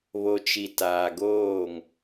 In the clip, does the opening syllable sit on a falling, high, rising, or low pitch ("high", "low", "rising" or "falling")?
low